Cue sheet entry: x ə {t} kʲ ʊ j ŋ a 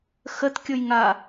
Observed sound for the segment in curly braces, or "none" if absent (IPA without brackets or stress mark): t